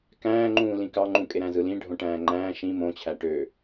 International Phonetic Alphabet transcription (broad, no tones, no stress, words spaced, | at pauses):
kæ̃ːŋ͡ǃũːlĩ kɑŋ͡ǃũ kʼeɾæ̃zɯlĩ ɖʱõʈæ̃ːŋ͡ǃæ̃ː ʃĩ mõt͡ɕʰæ ʈø